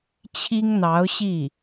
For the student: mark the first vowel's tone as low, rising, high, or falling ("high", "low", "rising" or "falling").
high